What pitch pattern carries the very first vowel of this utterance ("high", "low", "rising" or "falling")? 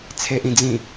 low